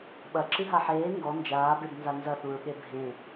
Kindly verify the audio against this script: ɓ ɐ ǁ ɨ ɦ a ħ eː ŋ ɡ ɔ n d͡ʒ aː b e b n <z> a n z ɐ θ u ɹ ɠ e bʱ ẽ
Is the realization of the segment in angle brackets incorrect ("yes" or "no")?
no